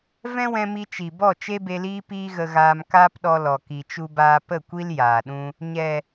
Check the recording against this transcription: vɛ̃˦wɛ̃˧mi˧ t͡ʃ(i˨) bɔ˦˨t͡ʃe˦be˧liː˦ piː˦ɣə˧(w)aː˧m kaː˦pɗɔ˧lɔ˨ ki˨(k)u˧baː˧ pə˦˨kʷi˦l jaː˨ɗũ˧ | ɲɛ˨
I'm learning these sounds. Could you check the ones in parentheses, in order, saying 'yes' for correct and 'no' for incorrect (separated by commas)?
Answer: yes, no, no